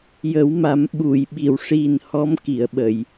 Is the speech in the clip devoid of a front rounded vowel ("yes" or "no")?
yes